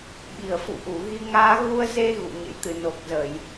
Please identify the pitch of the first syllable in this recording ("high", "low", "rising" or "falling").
low